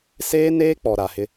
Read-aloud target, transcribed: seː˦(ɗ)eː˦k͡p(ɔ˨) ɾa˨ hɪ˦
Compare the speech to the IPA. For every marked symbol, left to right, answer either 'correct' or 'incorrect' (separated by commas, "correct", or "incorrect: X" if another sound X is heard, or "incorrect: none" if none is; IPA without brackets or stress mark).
incorrect: n, correct